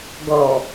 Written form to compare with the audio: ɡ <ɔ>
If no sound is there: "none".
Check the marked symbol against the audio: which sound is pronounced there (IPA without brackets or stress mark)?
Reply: ɔ